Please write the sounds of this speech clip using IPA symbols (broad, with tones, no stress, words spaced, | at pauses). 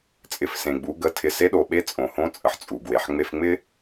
t͡sʼɪ˩˧fsẽ˩ɡ͡bu˩˧ ɡə˩˧tʰɪ˩ se˧˥ɗo˩ɓe˧˥ t͡sʼõ˩hõ˧˥t͡sʼə˩ħ t͡sʼu˩ɡwe˩ħ ŋ͡me˧fŋ͡mɪ˥